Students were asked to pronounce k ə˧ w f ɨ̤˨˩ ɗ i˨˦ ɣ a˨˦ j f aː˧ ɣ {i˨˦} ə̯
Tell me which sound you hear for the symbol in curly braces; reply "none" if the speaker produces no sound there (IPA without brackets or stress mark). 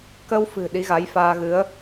ɨ˨˦